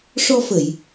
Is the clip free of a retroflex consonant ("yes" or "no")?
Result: no